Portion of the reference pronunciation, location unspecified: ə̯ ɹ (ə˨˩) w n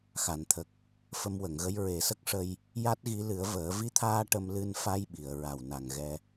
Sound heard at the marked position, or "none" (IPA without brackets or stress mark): a˨˩